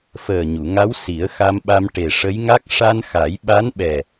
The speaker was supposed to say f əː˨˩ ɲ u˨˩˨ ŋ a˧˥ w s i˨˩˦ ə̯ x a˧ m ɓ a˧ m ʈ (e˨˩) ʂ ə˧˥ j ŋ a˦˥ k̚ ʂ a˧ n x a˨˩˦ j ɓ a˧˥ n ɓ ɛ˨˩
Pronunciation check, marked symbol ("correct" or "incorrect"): correct